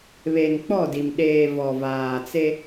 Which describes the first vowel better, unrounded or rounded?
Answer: unrounded